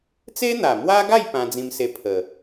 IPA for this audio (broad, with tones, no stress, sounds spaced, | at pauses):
t͡s e˦ n̪ a˨˩ m w a˦ ɡ a˥˧ j p ã˧ d͡z ĩ˧ m s e˧ pʰ ə˨˩